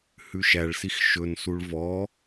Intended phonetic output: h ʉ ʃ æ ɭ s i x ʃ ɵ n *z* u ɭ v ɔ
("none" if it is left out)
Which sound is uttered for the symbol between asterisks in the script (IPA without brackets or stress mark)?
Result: s